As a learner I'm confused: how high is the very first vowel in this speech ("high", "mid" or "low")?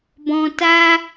mid